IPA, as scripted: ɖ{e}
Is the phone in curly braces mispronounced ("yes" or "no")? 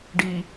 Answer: yes